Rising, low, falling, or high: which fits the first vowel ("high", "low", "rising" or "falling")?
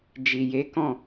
low